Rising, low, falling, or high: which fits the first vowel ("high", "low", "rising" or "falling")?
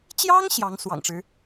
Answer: high